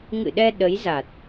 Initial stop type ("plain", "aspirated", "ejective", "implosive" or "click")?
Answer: implosive